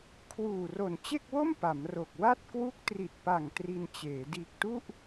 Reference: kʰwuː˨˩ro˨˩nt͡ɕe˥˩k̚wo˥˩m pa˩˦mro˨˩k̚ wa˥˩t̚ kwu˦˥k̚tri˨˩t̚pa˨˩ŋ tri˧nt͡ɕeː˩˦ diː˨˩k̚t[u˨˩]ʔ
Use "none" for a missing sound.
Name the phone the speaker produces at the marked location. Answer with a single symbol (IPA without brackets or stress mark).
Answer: u˥˩